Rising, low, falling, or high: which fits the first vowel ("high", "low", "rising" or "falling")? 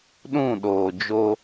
falling